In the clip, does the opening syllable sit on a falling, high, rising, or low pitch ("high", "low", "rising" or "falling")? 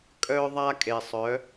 high